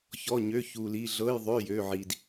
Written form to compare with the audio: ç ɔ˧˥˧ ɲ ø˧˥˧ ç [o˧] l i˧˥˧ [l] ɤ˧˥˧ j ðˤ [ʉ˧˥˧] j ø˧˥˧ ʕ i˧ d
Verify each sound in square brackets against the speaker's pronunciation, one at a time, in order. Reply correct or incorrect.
incorrect: u˧, incorrect: ɮ, incorrect: ø˧˥˧

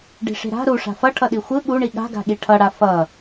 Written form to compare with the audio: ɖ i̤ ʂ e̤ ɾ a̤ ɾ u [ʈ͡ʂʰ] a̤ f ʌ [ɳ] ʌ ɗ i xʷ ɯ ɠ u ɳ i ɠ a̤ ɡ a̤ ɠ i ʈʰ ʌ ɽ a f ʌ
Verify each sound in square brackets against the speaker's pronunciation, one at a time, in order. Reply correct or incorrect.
incorrect: ʂ, incorrect: ʈʰ

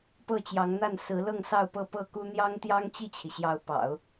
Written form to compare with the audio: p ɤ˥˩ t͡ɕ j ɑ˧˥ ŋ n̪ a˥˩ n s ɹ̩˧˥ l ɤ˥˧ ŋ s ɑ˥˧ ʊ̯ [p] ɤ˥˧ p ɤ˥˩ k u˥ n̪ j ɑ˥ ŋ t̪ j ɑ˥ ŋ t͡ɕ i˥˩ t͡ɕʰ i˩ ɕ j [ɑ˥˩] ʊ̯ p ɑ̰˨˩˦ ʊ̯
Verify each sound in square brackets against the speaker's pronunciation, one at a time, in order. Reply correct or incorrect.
correct, incorrect: ɑ˧˥

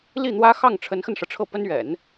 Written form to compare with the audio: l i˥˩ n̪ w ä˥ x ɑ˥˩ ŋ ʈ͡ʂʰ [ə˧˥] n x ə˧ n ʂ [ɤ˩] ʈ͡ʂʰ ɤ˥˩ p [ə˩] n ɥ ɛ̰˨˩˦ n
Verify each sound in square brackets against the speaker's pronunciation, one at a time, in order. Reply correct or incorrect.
correct, correct, incorrect: ə˥

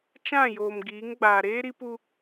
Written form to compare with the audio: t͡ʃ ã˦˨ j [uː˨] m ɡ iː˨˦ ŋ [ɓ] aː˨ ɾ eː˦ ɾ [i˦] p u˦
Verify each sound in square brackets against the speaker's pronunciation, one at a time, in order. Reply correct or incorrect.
incorrect: oː˨, incorrect: ɡ͡b, correct

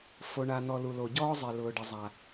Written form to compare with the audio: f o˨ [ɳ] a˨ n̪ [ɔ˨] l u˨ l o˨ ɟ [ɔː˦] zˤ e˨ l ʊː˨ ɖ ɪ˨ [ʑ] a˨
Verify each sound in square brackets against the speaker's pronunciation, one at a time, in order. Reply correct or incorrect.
correct, correct, correct, incorrect: zˤ

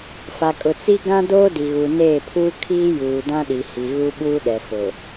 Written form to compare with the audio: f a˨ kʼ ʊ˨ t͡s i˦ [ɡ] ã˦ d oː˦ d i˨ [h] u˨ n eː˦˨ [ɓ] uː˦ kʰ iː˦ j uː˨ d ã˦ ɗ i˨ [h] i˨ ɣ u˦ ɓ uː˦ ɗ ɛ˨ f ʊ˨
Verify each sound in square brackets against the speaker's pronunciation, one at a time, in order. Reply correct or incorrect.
correct, incorrect: ɣ, incorrect: pʰ, correct

